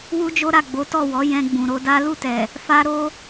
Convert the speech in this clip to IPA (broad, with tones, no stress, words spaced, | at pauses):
wu˦d͡ʒo˦ɾa˦˨ ɡ͡bo˨˦tɔ˦˨wɔ˨˦ jɛ̃˧ɡ͡bũ˨ɾo˧da˦ lu˦˨tɛ˨ | fa˧ɾo˧